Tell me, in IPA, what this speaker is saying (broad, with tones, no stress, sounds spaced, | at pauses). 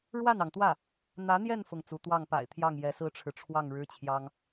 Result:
ɻ w a˥˩ n ɑ˩ ŋ t̪ w ä˥˩ | n̪ ä˧˥ n̪ j ɛ˥˧ n f ʊ˥˩ ŋ t͡s u˧˥ t̪ w ɑ˥˩ ŋ p a̰˨˩ ɪ̯ t̪ʰ j ɑ˥˩ ŋ j ɛ˧˥ s ɹ̩˥ ʈ͡ʂʰ ɻ̩˨ ʈ͡ʂʰ w ɑ˥˩ ŋ ɻ ɻ̩˥ t͡ɕʰ j ɑ˥ ŋ